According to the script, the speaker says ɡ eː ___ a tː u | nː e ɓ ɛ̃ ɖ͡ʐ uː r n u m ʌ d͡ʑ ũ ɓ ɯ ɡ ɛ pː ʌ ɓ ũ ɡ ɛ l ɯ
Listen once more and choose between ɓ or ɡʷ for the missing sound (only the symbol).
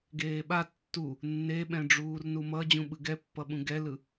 ɓ